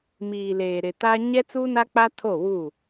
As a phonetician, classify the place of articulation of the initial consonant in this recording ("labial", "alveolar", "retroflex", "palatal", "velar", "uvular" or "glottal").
labial